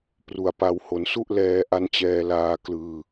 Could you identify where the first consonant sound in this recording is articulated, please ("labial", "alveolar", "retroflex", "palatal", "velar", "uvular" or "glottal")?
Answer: labial